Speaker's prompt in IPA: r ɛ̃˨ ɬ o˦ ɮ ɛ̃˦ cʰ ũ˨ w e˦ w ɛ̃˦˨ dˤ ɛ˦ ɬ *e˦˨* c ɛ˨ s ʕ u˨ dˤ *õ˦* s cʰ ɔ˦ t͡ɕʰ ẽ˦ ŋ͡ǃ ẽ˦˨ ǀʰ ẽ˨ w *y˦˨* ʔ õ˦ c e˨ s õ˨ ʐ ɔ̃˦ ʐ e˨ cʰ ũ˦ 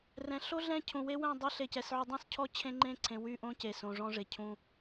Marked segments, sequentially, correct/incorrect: incorrect: e˨, incorrect: ũ˦, correct

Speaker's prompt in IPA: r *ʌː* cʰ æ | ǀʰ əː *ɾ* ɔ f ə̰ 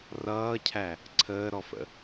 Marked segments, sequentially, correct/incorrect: correct, correct

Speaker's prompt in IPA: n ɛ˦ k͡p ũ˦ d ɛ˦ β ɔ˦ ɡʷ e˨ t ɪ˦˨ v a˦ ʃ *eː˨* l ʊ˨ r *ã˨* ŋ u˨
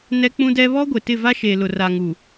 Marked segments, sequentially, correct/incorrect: correct, incorrect: a˨

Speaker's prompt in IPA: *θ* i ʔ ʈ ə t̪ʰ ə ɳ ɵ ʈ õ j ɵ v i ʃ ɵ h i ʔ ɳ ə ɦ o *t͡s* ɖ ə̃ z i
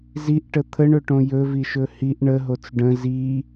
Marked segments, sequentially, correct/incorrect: incorrect: z, correct

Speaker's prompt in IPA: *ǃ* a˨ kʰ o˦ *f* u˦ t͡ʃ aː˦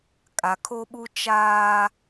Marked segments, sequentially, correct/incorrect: incorrect: kʼ, incorrect: ɓ

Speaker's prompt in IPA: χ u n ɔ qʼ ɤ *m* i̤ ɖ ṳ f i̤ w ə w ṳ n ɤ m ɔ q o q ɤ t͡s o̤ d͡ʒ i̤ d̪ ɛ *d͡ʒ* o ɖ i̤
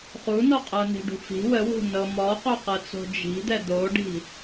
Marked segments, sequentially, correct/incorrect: incorrect: n, incorrect: d̪

